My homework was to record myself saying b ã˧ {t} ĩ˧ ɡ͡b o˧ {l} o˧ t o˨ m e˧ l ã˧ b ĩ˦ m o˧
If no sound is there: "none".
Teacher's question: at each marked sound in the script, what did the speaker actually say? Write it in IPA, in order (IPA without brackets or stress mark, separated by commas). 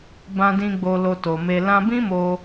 d, l